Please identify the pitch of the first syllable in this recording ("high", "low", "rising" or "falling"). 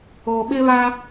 low